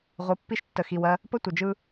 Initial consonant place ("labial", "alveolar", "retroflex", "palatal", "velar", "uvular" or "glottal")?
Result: uvular